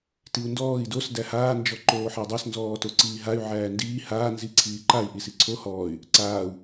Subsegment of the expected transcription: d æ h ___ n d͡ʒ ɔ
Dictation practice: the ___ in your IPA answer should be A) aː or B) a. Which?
A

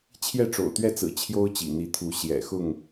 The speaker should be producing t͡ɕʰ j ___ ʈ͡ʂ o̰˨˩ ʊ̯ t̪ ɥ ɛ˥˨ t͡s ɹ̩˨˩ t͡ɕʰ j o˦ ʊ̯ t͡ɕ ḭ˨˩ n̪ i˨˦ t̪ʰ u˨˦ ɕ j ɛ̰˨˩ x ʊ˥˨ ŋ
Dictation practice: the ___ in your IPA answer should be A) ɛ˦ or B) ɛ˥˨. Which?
B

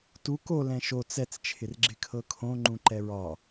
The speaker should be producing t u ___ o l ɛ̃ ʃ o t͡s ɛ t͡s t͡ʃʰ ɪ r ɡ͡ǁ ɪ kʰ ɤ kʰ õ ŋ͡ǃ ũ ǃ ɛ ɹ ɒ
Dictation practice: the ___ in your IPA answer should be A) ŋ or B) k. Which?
B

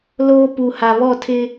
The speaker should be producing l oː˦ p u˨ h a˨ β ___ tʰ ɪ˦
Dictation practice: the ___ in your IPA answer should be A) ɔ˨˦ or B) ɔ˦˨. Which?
B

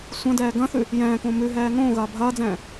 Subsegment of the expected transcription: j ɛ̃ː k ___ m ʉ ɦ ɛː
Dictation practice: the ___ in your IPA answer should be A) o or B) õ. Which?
B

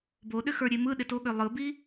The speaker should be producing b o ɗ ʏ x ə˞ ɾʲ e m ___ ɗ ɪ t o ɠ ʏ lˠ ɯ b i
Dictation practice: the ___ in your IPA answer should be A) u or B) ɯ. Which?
B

